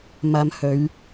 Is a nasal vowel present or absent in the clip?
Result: absent